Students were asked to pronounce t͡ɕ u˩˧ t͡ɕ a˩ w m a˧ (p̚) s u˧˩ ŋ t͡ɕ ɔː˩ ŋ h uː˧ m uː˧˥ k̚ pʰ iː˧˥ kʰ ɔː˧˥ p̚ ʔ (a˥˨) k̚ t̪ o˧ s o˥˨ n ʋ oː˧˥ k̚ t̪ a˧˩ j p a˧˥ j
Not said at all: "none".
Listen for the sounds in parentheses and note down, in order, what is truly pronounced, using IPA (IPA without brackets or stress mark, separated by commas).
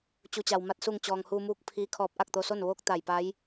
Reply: t̚, a˥˨